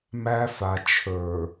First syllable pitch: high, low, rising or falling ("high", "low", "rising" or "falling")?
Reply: high